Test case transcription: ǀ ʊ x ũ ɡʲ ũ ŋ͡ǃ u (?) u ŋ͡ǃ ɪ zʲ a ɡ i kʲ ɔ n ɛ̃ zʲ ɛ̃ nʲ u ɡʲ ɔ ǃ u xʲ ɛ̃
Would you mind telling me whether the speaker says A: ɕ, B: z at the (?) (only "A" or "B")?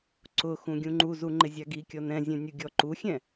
B